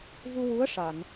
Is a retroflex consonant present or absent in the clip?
present